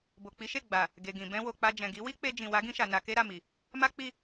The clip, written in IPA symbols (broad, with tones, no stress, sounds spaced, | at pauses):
b o˨ k͡p i˨˦ ʃ e˦˨ ɡ͡b a˨ | ɡ e˨ ɡ ĩ˨ b ɛ̃˧ w o˨ k͡p a˧ d͡ʒ ɛ̃˨ ɡ i˨˦ w i˦ k͡p e˧ d͡ʒ ĩ˨ w a˨˦ ɡ ĩ˧ ʃ a˨ n a˧ k e˦ ɾ a˦˨ m i˨ | m a˦ k͡p i˦˨